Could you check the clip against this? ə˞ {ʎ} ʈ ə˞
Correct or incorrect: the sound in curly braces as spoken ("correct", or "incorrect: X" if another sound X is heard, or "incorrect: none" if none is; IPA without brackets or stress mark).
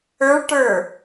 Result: incorrect: ɭ